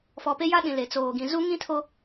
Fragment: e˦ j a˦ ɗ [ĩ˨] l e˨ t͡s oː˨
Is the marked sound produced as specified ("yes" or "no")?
yes